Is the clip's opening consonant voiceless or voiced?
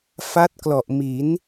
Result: voiceless